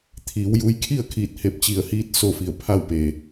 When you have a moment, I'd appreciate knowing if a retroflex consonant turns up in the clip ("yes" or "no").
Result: no